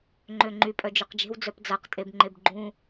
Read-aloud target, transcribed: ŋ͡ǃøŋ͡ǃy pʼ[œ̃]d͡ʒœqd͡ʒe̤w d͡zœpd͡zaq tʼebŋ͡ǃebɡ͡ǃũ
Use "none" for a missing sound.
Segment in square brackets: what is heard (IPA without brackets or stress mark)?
œ